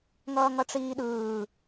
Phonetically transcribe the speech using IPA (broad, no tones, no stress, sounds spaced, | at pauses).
ŋ ʌː ŋ ʌ ʈ͡ʂ iː ɗ ɯː